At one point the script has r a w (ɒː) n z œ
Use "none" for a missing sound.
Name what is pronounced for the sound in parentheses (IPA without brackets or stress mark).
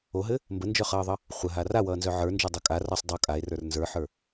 ʌː